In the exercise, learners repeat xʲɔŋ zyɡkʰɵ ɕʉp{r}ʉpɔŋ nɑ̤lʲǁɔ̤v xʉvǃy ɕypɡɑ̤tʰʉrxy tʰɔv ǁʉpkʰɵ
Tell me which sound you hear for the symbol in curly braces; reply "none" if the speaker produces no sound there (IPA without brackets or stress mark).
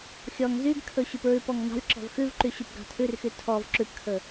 ɹ